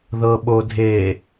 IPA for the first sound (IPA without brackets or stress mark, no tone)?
ð